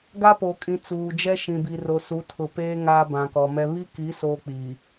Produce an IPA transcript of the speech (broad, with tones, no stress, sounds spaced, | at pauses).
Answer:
ɡ a˦ p o˨ kʼ ĩ˨ t͡s uː˨ d͡ʒ ɛ˦ ʃ ĩ˨ b i˨ r o˨ s u˨˦ tʰ ʊ˨ p eː˦ ŋ aː˦ b ã˨ k ɔ˨ m ɛ˦ β i˦ k i˨˦ s oː˨ k͡p i˨